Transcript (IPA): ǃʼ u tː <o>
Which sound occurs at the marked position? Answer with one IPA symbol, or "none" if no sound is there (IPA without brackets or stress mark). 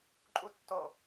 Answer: o